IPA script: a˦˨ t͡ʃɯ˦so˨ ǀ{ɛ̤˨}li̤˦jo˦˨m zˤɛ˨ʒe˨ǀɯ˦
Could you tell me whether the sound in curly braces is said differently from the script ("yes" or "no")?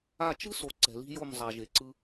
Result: no